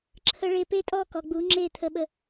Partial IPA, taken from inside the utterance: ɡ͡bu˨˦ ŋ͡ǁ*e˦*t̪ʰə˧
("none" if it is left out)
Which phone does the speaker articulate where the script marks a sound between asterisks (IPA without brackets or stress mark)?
e˦˨